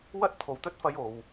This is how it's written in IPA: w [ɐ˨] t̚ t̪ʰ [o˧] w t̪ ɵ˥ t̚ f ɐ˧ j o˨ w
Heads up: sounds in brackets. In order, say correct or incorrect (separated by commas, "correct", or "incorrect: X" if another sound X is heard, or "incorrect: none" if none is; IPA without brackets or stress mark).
incorrect: ɐ˥, incorrect: o˨